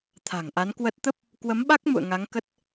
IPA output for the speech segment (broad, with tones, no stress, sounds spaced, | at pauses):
t̪ʰ a̤˨˩ ŋ ʔ a˨˦ n k w ə˦˥ t̚ t̪ ə˦˥ p̚ | k w ə˨˦ m ɓ a˦˥ k̚ m ṵ˧˨ ə̯ ŋ a˨˦ ŋ k ə˦˥ t̚